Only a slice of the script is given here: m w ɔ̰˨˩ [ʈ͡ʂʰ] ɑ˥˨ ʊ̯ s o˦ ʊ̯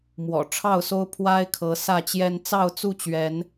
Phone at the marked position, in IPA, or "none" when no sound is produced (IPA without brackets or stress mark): ʈ͡ʂʰ